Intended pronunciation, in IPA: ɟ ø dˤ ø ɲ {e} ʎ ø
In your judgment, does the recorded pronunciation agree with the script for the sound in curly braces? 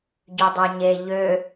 yes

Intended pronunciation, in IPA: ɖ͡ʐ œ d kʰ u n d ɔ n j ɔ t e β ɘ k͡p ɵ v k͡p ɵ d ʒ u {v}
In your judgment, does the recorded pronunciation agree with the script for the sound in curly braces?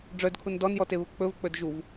yes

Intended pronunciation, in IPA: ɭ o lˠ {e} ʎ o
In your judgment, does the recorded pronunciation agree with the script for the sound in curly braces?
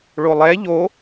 no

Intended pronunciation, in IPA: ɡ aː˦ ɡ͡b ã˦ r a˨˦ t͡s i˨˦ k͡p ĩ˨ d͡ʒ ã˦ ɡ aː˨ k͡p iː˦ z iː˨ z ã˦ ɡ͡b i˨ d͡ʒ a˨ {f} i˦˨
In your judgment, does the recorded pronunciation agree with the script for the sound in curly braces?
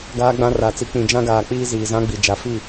yes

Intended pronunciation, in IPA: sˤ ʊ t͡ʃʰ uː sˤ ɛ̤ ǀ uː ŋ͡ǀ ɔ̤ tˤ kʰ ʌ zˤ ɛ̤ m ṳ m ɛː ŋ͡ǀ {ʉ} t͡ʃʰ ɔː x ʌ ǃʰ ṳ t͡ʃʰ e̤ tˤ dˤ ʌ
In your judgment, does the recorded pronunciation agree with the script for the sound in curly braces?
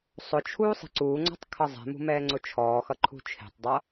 no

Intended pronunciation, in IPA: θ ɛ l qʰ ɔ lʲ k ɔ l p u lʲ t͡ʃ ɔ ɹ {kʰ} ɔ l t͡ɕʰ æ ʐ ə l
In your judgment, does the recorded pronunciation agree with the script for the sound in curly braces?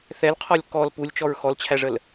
no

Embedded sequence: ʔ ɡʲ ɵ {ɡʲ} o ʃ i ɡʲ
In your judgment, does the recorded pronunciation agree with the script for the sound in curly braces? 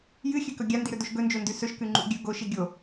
no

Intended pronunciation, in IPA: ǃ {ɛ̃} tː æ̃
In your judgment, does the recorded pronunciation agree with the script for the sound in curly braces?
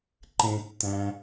no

